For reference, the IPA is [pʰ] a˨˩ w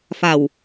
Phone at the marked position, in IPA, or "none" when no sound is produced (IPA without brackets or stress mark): f